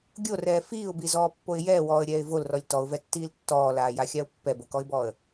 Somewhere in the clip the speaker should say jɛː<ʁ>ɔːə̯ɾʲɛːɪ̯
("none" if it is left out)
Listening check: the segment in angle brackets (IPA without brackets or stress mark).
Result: w